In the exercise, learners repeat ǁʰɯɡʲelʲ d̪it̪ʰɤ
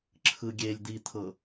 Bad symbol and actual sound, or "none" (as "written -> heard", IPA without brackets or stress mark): none